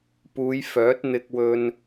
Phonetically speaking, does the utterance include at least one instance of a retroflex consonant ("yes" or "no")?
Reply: no